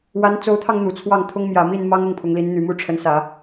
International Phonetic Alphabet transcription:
w a˧˥ n t͡s o˧˥ ʊ̯ t̪ʰ ɑ˧ ŋ n̪ u˨˩ t͡sʰ w ɑ˥˩ ŋ t̪ʰ ʊ˥ ŋ m j ä˨˩ m i˥˩ n m ɑ˥ ŋ ʊ˥˩ ŋ pʰ ʊ˧˥ ŋ l i˧˥ n n̪ y˨˩ m u˥˩ ʈ͡ʂʰ ə˧˥ n s ä˨˩˦

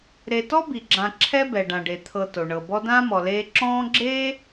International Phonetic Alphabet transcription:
ɾ e˨ t ɔ˥ b i˩ ɡ͡ǁ ã˨ ǁʰ ɛ˦ b ɛ˩ ɖ ã˩ ɖ e˩ t̪ʰ ɤ˨ t o˩ ɳ ɤ˨ b ɔ˦ d ãː˥ m ɔ˨ l eː˦ ǁ ɔ̃ː˦ ɡ͡ǁ eː˥

